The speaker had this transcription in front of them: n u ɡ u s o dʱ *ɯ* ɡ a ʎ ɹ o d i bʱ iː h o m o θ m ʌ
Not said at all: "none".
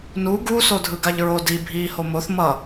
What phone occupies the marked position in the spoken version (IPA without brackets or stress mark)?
ɯ